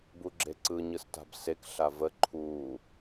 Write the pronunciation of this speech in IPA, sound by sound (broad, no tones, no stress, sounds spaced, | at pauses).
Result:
b u ɡ͡ǁ e ǀ ɯ ɲ ɯ s t a̤ b s e k ɬ a v ə ǃʰ uː